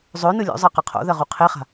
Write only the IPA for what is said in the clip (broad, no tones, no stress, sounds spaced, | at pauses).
zˤ ɵ n ɯ lʲ o̰ zˤ ɜ q ɐ qʰ o̰ ð ɜ ʁ u qʰ e χ a̤